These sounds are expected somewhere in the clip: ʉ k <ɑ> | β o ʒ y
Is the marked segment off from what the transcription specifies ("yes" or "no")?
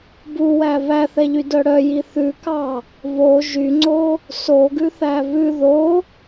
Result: no